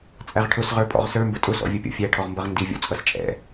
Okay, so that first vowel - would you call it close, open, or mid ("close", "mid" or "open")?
open